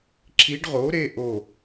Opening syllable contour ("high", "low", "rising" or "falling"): rising